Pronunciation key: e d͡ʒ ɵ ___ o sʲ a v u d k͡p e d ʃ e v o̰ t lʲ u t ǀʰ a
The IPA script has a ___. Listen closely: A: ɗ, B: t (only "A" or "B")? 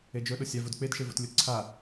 A